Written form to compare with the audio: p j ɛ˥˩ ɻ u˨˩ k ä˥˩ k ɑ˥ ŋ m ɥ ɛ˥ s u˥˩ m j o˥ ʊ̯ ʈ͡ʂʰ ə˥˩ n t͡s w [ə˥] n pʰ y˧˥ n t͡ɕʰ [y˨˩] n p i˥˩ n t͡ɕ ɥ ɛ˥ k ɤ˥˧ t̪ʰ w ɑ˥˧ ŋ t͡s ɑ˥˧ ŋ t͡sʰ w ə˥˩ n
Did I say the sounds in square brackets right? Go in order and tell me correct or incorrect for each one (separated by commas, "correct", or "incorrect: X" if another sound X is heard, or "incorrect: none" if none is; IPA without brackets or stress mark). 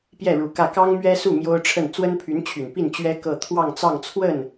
correct, correct